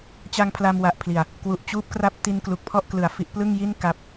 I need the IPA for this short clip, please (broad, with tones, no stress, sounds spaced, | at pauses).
t͡ɕ a˧ ŋ pʰ l a˧ m w a˨˩ ʔ pʰ l i˨˩ a̯ | k w u˨˩ ʔ t͡ɕ uː˥˩ p̚ k r a˥˩ p̚ t i˧ n k l u˨˩ k̚ pʰ ɔ˥˩ ʔ k l ɯ˨˩ a̯ f i˦˥ ʔ p l ɯ˥˩ ŋ j i˥˩ n k a˦˥ p̚